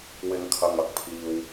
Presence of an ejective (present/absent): absent